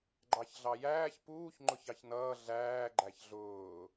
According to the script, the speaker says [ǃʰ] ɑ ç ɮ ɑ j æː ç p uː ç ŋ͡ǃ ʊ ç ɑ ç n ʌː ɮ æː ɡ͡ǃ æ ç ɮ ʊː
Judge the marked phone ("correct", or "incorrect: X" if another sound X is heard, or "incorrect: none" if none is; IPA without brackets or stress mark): incorrect: ɡ͡ǃ